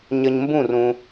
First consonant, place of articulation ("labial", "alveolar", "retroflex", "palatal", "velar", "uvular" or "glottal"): palatal